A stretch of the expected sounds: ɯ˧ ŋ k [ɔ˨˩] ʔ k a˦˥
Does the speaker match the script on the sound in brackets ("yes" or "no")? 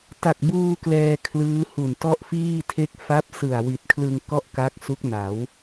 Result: no